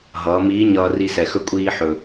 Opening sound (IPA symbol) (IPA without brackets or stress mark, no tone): ɦ